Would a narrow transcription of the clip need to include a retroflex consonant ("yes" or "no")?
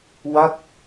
no